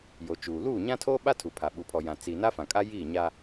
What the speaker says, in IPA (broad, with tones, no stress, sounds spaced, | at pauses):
j o˨ t͡ʃ uː˨ l uː˦˨ ɲ ã˦ tʰ oː˦ ɓ a˦ tʰ u˨ pʰ a˨ ɓ u˨ pʰ ɔ˨ j ã˨ t͡s i˨ n a˦ f ã˨ kʼ a˦ j iː˦˨ ɲ a˦